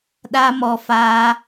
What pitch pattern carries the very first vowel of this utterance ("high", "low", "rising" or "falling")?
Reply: high